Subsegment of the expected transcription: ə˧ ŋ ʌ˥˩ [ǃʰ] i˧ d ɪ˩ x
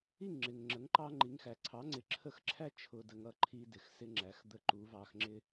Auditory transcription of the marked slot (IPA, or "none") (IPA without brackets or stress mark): ǃʰ